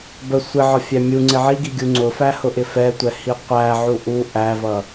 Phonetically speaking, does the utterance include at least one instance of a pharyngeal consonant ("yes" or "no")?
yes